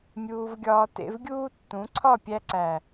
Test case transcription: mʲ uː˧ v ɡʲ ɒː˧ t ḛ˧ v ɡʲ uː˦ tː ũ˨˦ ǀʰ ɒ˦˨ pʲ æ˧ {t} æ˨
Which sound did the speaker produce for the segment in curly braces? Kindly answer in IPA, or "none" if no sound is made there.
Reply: ǀ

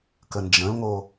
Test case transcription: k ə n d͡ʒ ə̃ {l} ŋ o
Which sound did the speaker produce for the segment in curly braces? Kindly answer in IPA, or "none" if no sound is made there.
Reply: l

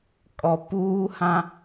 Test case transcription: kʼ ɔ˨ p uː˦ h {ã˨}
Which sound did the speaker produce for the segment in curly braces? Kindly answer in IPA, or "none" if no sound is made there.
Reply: ã˦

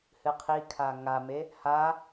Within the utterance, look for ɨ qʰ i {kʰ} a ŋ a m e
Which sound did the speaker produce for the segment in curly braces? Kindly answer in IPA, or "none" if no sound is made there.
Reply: kʰ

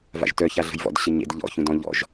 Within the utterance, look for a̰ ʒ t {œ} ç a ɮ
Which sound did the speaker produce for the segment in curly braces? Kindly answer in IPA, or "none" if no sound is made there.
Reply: œ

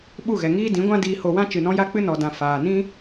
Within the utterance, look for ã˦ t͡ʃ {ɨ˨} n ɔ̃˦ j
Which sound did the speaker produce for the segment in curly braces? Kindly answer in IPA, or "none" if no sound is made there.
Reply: ɨ˨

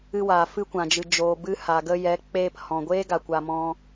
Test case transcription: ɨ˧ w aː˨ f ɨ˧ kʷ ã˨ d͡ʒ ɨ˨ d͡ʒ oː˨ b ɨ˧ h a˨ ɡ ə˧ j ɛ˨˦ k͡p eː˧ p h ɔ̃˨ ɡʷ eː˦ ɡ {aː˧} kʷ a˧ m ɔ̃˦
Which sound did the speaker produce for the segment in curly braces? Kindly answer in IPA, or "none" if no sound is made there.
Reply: a˧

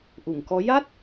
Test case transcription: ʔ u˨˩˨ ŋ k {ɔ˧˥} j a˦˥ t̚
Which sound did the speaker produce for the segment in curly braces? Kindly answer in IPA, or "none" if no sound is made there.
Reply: ɔ˧˥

